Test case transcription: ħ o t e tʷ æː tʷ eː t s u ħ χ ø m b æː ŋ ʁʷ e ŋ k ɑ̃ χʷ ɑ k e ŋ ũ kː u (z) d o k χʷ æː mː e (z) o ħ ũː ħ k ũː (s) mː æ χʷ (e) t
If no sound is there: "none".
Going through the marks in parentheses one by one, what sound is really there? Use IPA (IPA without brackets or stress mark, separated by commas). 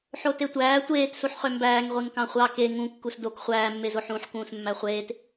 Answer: s, z, s, eː